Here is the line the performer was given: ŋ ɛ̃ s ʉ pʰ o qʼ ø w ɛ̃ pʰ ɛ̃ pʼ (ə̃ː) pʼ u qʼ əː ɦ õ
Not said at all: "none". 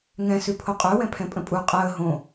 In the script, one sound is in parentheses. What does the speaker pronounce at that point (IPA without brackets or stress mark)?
ə̃